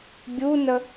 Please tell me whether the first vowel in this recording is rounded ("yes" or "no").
yes